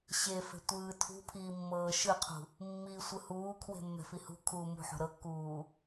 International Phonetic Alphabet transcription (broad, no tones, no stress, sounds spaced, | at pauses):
ɕ e f e̤ tʷ ɯː tʰ ṳ pʰ iː mː ɤː ʃ ɯ qʰ ṳ | mː iː sʷ ɯ h uː kʰ w e̤ mː ɛ̤ f i h ṳ kʰ uː m ṳ ħ o̤ ɾ ɤ kː uː